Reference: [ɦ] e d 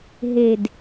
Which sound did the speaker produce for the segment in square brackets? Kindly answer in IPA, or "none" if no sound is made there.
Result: ɦ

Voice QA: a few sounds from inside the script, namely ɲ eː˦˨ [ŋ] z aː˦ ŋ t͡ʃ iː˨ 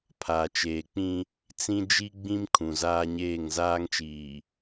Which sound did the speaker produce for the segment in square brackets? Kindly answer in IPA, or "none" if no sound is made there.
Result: ŋ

